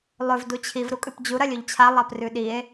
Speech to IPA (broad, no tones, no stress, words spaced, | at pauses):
lˠɵv dut͡ɕʰiv ɾukʼʉpd͡ʑu ɾɐlʲɵʎt͡ɕʰa lˠaprʉɗie̯